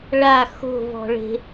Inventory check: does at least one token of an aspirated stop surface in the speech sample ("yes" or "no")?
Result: no